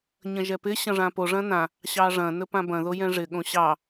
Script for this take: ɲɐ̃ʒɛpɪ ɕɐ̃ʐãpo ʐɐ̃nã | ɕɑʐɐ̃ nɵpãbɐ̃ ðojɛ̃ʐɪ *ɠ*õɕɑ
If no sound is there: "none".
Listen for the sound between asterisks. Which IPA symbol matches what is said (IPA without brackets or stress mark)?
ɠ